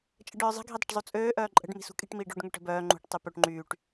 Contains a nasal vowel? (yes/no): no